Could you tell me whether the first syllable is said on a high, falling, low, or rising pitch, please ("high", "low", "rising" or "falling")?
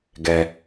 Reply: low